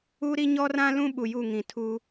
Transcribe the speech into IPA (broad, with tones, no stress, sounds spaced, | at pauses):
u˦ ɾ i˦ ɲ ɔ˦ r ã˦ l ũ˦ ɓ u˨ j u˦˨ ŋ ĩ˨ tʰ u˦